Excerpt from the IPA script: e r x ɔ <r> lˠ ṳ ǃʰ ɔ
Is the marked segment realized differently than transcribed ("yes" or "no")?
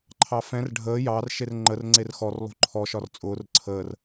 no